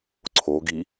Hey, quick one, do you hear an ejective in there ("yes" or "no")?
no